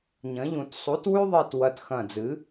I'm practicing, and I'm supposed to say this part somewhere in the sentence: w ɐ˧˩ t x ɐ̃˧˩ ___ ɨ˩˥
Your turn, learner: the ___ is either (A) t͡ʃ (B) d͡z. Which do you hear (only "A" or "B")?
B